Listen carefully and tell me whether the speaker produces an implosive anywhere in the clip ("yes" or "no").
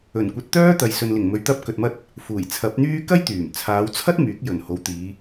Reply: no